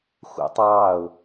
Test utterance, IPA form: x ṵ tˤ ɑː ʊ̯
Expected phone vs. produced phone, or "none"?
none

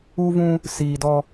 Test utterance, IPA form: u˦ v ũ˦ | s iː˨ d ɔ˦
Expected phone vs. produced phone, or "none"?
none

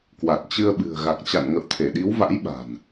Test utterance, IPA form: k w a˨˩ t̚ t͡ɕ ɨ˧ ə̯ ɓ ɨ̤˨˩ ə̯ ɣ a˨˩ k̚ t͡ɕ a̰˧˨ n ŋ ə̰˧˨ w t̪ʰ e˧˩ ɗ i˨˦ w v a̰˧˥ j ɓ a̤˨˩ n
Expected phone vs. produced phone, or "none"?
none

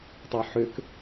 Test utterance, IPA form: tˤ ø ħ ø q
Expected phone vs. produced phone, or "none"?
q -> k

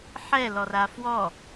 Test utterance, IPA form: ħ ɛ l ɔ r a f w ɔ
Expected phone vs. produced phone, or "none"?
none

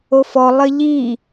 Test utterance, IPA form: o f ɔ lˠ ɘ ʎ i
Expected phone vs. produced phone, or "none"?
none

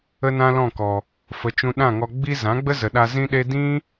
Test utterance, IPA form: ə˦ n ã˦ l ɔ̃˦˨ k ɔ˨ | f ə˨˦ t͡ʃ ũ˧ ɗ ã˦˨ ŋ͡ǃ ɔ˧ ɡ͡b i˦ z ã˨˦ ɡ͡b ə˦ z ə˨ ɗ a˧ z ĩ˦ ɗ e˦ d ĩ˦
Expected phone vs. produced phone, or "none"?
ŋ͡ǃ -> ŋ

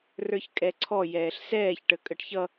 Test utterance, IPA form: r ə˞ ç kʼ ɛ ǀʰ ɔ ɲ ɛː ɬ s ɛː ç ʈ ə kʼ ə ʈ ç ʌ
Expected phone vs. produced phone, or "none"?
ɲ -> j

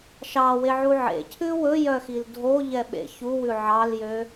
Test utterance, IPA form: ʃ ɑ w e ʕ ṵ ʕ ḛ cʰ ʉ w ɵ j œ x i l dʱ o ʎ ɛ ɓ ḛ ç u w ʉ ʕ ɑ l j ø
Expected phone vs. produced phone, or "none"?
ṵ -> u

